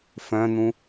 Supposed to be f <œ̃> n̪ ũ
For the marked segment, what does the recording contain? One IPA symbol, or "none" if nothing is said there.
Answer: œ̃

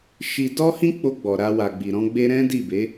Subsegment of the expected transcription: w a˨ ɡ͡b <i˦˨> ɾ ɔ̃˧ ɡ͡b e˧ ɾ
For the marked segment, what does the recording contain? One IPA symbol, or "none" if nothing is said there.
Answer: i˨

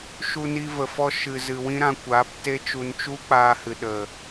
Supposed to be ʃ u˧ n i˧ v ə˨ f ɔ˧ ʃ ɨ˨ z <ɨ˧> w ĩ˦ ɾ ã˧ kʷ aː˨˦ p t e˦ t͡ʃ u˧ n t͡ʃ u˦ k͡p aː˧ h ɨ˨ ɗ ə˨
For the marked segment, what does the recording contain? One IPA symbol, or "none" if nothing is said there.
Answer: ɨ˨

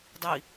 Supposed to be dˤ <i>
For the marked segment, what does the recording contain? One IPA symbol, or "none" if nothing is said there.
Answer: i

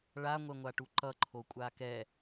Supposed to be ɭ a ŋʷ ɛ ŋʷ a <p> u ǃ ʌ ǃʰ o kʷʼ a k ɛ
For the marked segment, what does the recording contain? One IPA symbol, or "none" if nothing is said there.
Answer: ʈ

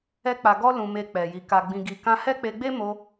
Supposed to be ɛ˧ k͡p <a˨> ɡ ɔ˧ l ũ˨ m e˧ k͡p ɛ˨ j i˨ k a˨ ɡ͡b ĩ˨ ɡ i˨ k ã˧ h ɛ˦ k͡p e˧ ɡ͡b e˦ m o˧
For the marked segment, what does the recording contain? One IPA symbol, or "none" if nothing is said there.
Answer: a˨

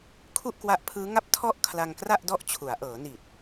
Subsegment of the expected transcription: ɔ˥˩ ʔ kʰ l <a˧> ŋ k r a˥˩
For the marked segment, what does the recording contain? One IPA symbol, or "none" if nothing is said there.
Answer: a˧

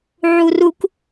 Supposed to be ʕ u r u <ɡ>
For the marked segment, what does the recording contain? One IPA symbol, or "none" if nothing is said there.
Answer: k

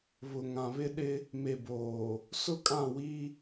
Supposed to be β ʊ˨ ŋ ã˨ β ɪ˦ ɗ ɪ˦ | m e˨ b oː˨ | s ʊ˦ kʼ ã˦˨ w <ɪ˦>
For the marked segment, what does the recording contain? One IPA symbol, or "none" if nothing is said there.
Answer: i˦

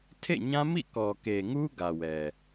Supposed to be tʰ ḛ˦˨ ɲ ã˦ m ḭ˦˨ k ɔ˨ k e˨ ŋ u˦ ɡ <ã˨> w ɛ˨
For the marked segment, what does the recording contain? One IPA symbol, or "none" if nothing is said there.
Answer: ä˨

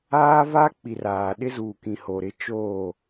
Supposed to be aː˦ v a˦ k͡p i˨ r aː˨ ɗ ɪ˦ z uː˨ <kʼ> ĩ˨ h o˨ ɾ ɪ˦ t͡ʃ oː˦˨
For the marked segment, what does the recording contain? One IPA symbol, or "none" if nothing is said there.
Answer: k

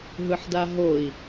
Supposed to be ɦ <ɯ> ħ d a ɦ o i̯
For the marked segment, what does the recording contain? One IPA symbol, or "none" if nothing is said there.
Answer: ɯ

